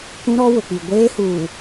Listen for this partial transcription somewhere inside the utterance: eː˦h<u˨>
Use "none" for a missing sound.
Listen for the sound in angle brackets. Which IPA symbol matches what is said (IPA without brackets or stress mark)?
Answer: uː˨